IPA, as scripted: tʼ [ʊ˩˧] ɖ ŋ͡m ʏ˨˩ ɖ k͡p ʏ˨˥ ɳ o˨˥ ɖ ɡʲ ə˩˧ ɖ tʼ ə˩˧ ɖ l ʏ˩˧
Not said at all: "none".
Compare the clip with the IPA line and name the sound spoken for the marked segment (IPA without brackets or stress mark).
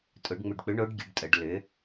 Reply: ʊ˩˧